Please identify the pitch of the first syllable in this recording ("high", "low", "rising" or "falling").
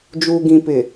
low